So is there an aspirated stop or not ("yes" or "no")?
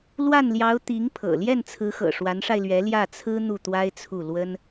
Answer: yes